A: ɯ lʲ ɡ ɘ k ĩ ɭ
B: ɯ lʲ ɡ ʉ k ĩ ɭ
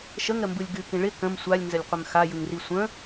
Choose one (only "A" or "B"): B